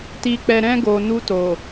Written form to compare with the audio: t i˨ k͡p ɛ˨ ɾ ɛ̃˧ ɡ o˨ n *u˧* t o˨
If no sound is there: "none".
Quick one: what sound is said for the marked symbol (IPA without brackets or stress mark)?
u˧